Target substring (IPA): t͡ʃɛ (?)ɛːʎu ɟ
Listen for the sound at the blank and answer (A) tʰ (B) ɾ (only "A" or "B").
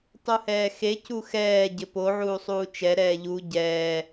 B